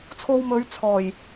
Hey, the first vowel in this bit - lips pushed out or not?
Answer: yes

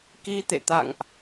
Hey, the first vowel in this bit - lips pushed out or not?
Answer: no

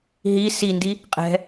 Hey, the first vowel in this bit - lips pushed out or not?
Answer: no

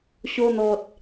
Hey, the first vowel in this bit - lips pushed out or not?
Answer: yes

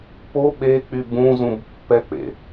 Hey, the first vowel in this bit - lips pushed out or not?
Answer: yes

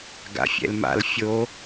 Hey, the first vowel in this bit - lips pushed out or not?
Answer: no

